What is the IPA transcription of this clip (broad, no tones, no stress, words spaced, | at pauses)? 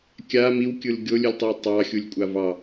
kʲa miwkʲɯl ɡʲolʲɯlʲtˤɯw tˤɑxʲulʲkʷʼa vɑ